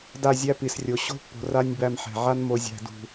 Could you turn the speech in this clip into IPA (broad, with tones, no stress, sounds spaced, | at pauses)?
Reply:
d a˦˨ zʲ æ˦ p i˨ s rʲ o˨ ɕ o̤˦ pː o̤˨ r a˧ nʲ b æ˧ m ħ ɛ̤˨ ʕ a˧ n m o˨ zʲ æ̤˨ d ṳ˨